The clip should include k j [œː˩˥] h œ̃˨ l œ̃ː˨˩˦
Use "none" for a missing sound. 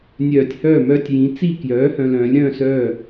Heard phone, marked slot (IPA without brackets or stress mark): œː˩˥